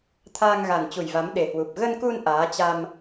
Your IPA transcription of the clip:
t̪ʰ aː˧ ŋ ɣ a˨˩ n t͡ɕ u˨˩ j v a˨˦ m ɗ e˨˩ h w u˨˩ p̚ ɣ ə˧ n k u˧ n ʔ aː˨˦ t͡ɕ a˧ m

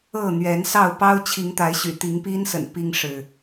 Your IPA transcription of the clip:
ɤ˥˨ n̪ ɥ ɛ˨˦ n s ɑ˥˨ ʊ̯ p ɑ˦ ʊ̯ t͡ɕʰ i˨˦ ŋ t̪ a˨˦ ɪ̯ ɕ y̰˨˩ t̪ i˨˦ ŋ p i˦ n s ə̰˨˩ n p i˦ ŋ ʂ ɻ̩˨

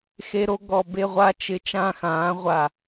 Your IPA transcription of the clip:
x e˧ ɾ o˧ ɡ ɔ˨˩ b e˧ ʁʷ a˧ t͡ʃ ɪ˨˩ t͡ʃ ã˥˨ x ãː˩˥ ʁʷ a˨˩

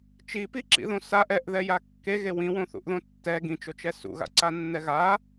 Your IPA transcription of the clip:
t͡ʃ i p i ǁ ḭ ð õ s a ʔ ɛ ʔ ð ɛ j a kː e ɣ e w ĩ w õ θ ṵ ʔ ð õ tː ɛ ɡ ĩ t͡ʃ o t͡ʃ ɛ s ṵ ɣ a̰ ǀ a nː ɛ ɣ a

